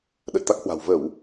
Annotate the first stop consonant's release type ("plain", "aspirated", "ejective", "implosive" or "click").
implosive